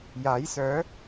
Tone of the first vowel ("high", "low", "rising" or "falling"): rising